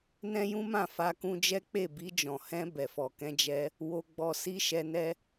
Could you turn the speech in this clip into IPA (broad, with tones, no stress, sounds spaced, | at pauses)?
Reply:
n ɛ̃˦ j ũ˦ m ã˦˨ f a˧ k ũ˧ d͡ʒ ɛ˦ k͡p e˦˨ b i˧ d͡ʒ ɔ̃˨ h ɛ̃˧ b ɛ˨ f ɔ˨ k ɛ̃˧ d͡ʒ ɛ˧ | w o˧ ɡ͡b ɔ˧ s i˦ ʃ ɛ˧ n ɛ˦